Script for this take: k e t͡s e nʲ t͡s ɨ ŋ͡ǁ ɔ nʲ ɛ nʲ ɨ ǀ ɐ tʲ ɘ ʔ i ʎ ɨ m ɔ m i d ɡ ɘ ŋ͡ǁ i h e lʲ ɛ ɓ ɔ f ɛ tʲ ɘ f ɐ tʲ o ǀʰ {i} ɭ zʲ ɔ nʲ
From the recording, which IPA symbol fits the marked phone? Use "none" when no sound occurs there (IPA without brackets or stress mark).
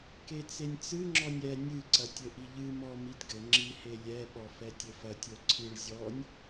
ɨ